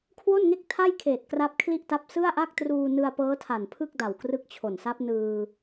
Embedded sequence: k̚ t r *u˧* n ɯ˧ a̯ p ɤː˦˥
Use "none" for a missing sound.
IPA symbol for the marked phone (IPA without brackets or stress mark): uː˧